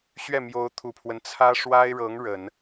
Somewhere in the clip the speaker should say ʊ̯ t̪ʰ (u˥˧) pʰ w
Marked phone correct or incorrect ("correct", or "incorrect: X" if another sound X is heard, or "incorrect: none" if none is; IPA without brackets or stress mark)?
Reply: incorrect: u˨˩